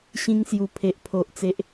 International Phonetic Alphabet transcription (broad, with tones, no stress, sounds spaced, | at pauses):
ɕ ĩ˧ ŋ s j u˨˩ pʰ e˨ ʔ pʰ o˨ ʔ t͡s e˦ ʔ